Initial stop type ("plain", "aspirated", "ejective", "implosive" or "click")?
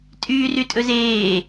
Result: ejective